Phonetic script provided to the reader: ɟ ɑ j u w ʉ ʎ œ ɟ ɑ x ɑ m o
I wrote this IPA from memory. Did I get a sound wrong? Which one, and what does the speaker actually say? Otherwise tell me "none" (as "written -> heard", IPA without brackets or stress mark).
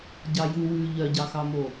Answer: none